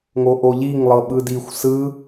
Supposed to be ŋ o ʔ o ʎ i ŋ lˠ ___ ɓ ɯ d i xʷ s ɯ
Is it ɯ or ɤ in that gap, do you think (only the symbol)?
ɤ